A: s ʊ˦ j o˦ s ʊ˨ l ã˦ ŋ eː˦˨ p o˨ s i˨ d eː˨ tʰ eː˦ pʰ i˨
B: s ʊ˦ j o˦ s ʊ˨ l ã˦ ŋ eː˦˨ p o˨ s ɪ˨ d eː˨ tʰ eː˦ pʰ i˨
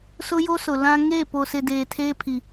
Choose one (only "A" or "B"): B